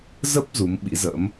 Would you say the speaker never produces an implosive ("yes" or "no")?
no